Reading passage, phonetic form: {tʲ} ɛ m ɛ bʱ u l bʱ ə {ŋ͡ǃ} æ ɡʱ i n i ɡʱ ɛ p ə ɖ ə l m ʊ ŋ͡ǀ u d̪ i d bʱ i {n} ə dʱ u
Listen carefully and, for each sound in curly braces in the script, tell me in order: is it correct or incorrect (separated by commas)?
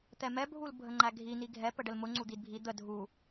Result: incorrect, correct, incorrect